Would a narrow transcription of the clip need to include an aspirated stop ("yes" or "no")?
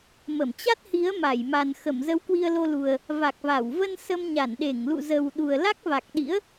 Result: no